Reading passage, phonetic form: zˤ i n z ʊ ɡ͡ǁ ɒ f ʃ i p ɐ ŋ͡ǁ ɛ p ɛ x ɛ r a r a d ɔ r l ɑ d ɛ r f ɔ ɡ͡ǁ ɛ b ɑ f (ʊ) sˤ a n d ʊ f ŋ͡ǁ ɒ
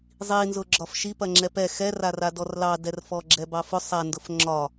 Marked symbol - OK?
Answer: yes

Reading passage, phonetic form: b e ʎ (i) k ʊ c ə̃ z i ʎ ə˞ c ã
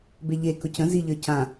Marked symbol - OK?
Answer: no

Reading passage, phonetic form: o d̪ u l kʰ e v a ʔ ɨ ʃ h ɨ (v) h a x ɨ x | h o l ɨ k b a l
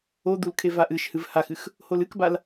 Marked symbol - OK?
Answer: yes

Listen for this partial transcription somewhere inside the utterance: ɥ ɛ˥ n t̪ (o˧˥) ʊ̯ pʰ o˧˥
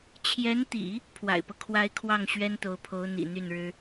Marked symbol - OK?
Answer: yes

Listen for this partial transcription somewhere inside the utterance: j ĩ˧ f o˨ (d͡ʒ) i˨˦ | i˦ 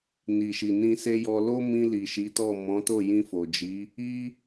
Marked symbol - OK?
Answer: yes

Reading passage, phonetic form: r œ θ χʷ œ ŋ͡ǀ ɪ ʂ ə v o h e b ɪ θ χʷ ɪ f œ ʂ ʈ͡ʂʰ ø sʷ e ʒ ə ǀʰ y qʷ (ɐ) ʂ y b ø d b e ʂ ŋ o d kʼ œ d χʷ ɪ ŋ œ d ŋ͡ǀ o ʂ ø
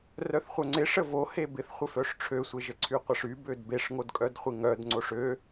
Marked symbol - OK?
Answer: yes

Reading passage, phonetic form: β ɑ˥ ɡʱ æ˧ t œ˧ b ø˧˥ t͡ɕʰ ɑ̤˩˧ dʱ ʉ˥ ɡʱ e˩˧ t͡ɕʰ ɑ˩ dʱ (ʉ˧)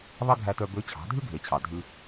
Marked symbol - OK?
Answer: yes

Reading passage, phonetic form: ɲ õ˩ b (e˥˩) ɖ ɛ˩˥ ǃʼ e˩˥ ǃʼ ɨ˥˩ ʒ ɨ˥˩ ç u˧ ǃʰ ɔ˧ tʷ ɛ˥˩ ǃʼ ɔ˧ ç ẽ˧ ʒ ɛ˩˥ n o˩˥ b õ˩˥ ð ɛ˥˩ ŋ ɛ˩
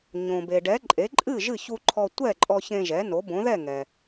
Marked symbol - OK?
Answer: no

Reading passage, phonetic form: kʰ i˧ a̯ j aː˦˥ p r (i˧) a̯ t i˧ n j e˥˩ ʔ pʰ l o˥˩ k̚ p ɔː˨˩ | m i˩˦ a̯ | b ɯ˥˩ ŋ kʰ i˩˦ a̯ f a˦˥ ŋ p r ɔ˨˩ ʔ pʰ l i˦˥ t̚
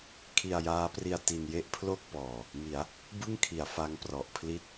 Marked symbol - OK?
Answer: yes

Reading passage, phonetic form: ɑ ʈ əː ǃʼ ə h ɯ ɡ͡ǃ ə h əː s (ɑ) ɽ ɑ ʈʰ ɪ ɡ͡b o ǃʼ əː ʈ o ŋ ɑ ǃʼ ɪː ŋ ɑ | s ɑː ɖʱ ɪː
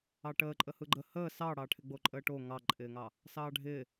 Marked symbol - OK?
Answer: yes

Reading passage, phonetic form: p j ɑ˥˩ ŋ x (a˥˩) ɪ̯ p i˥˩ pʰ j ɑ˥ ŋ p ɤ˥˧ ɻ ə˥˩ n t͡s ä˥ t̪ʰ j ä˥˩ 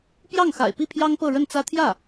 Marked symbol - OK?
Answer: no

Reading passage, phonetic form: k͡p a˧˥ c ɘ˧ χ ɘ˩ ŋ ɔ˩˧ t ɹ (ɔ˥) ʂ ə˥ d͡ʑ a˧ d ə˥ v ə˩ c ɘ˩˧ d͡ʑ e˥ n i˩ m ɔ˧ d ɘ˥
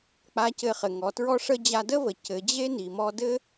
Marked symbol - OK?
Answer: yes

